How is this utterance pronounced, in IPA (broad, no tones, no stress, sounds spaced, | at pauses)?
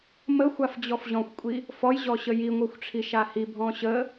m ə xʷ a f d͡ʑ ɔ f ʑ ɔ̃ xʷ kʷʼ i | f ɔ j ʑ ɔ ɕ ə j i ŋʷ ɤ xʷ ʈ͡ʂʰ i ʃ a h i bʱ ɔ̃ ɕ ə